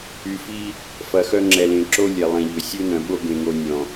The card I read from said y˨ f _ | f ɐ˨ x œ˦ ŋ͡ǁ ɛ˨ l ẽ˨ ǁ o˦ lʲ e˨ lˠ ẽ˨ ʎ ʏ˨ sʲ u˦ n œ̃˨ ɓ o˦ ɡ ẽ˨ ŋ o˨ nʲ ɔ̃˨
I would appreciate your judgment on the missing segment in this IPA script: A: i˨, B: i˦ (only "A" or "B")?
B